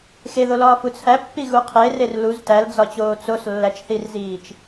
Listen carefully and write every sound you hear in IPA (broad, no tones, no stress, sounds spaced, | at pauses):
x e ð o l ɒː f u t͡sʰ æ pː i ɣ u qʰ e r e r l u z t æ l d͡z ɒ t͡ɕ oː t͡s o s lː æ t͡ʃ θ i r z iː t͡ʃ